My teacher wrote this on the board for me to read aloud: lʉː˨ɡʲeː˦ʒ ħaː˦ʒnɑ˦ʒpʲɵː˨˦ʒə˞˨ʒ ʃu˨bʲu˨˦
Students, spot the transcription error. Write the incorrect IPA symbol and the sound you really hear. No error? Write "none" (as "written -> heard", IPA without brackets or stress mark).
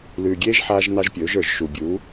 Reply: none